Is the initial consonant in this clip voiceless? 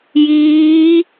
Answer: no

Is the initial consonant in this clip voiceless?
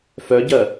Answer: yes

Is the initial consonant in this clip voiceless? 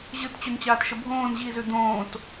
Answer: no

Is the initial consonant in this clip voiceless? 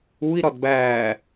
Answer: no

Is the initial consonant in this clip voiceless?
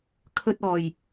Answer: yes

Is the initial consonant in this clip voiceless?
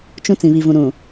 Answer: yes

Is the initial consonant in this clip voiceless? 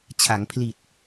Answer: yes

